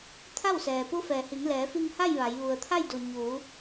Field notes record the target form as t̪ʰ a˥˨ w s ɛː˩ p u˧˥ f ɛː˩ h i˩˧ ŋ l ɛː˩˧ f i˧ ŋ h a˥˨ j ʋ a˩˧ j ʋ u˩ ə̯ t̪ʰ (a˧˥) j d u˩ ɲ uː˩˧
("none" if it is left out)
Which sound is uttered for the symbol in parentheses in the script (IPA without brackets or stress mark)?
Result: a˥˨